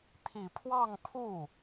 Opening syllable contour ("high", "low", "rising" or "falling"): low